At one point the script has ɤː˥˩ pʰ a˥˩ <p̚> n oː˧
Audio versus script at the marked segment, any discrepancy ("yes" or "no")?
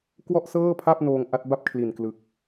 no